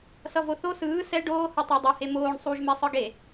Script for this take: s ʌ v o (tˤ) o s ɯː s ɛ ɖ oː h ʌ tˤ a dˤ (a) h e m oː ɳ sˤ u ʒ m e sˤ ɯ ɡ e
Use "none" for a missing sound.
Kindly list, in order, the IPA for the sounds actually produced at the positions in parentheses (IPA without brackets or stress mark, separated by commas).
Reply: θ, ʌ